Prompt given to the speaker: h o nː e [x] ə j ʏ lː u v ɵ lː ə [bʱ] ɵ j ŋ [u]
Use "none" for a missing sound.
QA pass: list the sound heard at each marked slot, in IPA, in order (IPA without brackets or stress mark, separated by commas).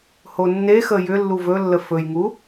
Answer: x, f, u